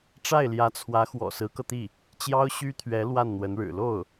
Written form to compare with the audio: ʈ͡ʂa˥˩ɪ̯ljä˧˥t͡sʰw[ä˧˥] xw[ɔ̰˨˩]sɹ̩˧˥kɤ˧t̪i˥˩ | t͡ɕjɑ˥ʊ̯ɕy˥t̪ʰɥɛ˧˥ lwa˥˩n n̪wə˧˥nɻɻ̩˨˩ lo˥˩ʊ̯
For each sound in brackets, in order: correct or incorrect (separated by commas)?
correct, correct